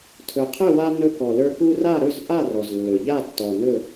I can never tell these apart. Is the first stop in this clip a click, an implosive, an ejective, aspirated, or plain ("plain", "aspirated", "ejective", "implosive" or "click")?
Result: aspirated